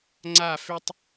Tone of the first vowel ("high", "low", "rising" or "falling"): falling